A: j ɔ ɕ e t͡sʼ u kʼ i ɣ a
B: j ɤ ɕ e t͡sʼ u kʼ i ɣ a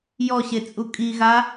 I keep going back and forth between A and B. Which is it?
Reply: A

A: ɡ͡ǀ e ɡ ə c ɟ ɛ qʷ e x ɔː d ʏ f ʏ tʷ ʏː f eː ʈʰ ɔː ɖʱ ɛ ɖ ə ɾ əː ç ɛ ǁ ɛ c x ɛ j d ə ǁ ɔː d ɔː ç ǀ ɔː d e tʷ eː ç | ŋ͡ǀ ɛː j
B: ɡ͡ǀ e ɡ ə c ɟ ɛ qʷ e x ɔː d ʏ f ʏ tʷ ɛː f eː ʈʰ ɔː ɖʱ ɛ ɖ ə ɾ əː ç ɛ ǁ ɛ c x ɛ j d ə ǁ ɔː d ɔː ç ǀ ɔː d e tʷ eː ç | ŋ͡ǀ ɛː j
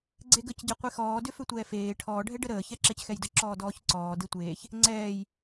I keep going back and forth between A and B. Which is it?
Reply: B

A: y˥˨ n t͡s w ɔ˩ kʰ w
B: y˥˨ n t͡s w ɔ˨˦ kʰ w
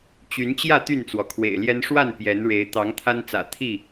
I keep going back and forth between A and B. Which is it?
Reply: A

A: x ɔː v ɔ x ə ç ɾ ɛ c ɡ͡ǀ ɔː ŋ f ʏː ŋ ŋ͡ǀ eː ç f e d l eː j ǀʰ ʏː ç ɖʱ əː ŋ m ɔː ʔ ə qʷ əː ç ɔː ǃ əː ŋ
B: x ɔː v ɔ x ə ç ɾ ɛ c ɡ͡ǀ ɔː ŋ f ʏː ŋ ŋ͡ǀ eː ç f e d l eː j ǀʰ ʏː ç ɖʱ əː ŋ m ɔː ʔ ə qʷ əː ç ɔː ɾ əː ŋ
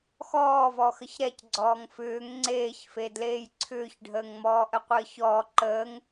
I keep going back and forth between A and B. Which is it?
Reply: A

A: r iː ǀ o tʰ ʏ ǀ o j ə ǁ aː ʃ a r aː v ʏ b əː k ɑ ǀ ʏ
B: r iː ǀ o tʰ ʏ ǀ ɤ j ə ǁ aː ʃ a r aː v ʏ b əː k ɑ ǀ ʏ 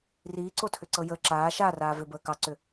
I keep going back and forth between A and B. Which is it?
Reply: B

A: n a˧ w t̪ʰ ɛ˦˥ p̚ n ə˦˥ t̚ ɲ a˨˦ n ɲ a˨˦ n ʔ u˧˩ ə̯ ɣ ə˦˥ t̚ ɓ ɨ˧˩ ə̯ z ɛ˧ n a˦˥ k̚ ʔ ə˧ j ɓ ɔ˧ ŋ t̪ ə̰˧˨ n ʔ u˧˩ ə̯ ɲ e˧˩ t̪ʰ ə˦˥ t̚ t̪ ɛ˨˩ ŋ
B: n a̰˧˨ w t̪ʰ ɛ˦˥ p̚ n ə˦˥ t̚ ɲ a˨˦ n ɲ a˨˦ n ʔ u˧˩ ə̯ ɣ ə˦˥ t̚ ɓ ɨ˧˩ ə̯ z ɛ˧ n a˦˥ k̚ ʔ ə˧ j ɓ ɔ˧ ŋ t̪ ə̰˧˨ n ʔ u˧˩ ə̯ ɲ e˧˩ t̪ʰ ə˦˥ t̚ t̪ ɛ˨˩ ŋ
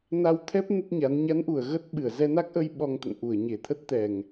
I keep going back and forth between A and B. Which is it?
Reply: A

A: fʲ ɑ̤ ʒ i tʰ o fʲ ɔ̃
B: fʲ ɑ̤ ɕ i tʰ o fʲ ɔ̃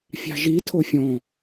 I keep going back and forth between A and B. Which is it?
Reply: A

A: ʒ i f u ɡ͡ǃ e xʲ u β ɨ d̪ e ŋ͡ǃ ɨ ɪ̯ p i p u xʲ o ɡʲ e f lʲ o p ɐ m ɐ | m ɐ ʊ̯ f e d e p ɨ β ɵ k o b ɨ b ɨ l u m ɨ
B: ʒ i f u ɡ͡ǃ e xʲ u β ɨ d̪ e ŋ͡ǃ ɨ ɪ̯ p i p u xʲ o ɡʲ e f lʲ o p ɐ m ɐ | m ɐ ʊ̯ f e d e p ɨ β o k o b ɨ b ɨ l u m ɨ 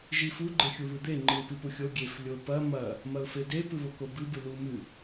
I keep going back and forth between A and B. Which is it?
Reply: B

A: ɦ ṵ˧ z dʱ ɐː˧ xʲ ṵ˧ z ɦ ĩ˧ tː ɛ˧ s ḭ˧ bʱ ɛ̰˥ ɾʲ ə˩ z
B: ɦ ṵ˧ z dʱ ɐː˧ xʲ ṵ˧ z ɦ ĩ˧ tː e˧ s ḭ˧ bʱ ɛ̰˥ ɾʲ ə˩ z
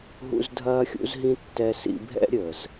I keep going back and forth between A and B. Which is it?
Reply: A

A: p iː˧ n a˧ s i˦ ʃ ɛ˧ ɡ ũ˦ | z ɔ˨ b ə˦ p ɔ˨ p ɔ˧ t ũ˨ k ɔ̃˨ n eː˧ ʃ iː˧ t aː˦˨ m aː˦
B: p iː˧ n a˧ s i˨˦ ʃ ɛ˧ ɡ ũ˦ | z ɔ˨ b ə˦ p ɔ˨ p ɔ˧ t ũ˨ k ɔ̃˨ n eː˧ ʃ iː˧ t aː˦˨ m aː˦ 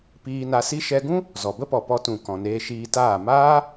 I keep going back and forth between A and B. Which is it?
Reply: A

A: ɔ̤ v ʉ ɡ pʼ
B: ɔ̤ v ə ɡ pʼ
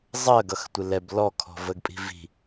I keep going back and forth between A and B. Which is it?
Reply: B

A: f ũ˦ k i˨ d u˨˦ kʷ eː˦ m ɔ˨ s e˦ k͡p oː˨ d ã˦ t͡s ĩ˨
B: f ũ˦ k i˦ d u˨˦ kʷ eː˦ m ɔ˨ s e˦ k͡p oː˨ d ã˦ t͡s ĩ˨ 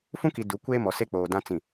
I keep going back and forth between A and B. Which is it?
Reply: A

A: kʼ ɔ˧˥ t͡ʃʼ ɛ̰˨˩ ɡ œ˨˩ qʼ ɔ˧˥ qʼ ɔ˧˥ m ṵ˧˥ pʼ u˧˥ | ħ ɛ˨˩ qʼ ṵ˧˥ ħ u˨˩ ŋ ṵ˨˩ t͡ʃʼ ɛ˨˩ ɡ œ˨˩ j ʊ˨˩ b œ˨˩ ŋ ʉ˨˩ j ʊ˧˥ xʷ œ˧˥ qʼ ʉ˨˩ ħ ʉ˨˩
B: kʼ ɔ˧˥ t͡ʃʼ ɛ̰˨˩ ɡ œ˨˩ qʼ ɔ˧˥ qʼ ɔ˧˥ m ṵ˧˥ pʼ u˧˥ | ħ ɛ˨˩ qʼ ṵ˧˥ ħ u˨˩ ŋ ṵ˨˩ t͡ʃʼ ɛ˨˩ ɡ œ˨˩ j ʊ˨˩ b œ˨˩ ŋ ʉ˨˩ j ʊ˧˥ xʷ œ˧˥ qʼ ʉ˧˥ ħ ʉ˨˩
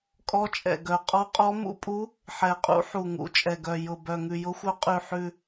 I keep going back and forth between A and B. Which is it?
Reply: A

